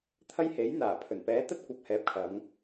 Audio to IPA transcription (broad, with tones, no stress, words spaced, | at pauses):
t̪ʰɐ˥j he˨˥jn̪aː˨˩ pʰɵ˨˩npɛː˨˥t̪ɐ˧t̚kʷɐ˨p̚ hɛː˨p̚kʰɐ˨˧ŋ